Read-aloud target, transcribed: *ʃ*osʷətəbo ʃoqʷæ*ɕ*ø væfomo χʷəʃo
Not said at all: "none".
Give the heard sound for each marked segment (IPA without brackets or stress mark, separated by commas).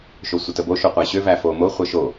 ʃ, ɕ